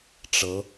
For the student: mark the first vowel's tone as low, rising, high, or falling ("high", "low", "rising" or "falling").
rising